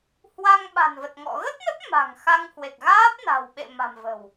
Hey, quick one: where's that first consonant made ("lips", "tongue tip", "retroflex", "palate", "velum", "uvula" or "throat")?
throat